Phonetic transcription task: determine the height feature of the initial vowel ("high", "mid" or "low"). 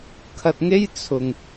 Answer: low